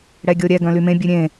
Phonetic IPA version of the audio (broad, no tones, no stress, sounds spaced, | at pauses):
ɽ ɛ ɡʲ o ɾʲ ɛ ɡ œ̃ l y m ẽ bʲ ʉ ɾʲ ẽ